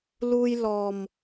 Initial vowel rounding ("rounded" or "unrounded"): rounded